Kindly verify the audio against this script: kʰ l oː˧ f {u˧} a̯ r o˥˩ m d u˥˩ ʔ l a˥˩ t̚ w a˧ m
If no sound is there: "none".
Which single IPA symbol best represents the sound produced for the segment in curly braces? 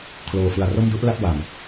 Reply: ɯ˧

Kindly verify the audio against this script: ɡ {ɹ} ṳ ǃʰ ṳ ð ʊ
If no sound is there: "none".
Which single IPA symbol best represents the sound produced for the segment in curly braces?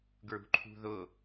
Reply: ɹ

